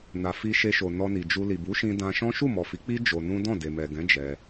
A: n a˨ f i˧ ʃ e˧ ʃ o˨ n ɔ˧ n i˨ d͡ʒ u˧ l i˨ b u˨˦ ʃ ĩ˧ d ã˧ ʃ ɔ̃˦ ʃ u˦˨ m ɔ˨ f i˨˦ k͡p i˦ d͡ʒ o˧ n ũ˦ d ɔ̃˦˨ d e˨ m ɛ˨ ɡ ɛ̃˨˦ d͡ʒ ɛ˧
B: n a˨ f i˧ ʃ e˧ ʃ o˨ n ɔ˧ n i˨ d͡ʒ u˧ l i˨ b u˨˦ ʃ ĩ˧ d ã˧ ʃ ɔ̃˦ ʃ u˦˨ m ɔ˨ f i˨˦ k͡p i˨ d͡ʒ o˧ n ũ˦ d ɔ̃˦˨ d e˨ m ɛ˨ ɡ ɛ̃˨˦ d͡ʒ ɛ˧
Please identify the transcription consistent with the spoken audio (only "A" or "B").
A